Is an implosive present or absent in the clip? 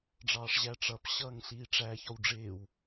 absent